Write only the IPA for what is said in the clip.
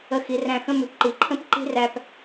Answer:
ə˧˩xi˩˧ræ̃˧ xə̃˥mʉ˩˧pǃi˩˧ ǃʰə̃˥pǃi̤˥ ræ˧p

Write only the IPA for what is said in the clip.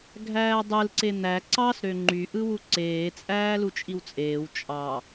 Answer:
ɡʱæːdˤɯlǀe n̪æ ǀɑsɾø ŋ͡ǃyʔɯwu ǀeːt͡sʼæːlu t͡ʃʼiwt͡sʼeːw t͡ʃʼɑ

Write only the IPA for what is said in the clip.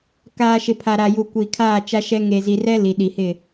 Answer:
kaː˨ ʃɪ˨pʰa˨ɾa˨ju˨ kʷiː˨kʰaː˦˨t͡ʃa˦ʃɛ˦ ŋe˨zi˨rɛ˦ li˨ɗi˨hɪ˦˨

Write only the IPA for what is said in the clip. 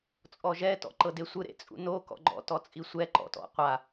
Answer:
t͡sʼɔʒɛ tɔ̰ǃɤdesʷɯ ɾḛt͡sʼṵno kɔ̰ɡ͡ǃɔ̰ tɔt͡sʼisʷɛ ǃɔ̰tɔ̰qʷa

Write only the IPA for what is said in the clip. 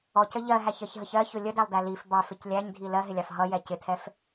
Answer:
ɔcə ʎɜɦæçɜçɦəç ɜçʊ lʲədælˠdæ lif bɑfɪc lʲæɲdʱi lɜɦɪlʲɑf ɦʌjɛ cɪtʰɛf

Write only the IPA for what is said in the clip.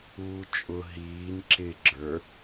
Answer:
uːt͡ʃʼʊ ɦiːn ǁɪ ɡ͡ǁə˞

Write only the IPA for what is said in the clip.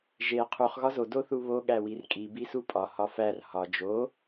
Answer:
ʒe qʰuχ ɣɒzo doθuβo ɠæwirkʼi bisupʼɒ hɒfær hɒ d͡ʒo

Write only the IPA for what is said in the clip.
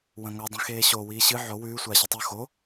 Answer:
wɐ̃ŋo dˤĩxeːɕo wiːɕɨ ʕo wʉː sʷaːɕɐtˤu xo

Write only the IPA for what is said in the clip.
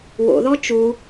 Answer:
wo̰ðɔ t͡ʃu

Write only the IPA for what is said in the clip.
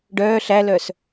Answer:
ɖœː ɬælœs

